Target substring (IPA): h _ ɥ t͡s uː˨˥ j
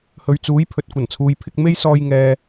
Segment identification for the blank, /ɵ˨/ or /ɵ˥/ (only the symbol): ɵ˨